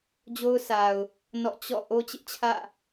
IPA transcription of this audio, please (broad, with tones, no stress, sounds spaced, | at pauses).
d͡ʑ o˦ ʊ̯ s a˨ ʊ̯ | n ɔ̰˦˨ t͡ɕ ɔ̰˦˨ ʔ o˦ t͡ɕ ɪ˦ ʔ t͡ɕʰ ä̰˦˨